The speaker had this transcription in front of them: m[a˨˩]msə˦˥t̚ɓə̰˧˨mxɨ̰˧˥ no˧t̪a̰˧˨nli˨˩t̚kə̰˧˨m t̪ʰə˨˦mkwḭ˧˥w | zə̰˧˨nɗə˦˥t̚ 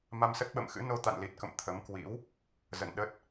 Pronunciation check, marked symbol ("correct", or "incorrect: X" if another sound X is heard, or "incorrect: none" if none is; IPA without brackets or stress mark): incorrect: a˧